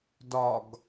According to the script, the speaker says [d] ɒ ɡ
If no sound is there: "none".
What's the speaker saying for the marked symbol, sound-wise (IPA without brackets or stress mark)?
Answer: d